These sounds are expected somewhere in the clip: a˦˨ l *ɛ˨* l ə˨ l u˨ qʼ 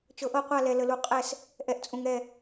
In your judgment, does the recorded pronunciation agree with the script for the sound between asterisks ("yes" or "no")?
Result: yes